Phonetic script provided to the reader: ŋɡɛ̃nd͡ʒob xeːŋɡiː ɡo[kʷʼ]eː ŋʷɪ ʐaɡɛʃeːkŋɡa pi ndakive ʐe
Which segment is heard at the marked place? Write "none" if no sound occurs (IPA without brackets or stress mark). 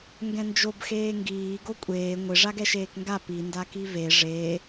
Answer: kʷʼ